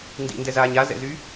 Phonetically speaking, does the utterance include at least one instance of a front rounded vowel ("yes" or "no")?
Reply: yes